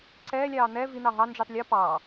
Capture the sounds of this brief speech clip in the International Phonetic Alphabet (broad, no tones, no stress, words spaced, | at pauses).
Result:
ǀɛːlʲɑː n̪ɛ vin̪ɑ ɦɑnd͡ʒytˤ lʲɔ pɑː